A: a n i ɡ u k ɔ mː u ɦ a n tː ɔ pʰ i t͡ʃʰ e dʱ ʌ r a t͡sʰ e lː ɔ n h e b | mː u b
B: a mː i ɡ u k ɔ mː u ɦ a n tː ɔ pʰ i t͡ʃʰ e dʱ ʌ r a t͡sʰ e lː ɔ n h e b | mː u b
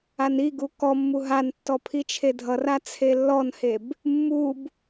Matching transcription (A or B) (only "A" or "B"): A